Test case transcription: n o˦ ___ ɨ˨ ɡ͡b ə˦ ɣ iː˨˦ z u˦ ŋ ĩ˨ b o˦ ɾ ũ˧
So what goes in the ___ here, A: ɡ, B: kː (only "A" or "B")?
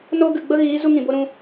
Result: A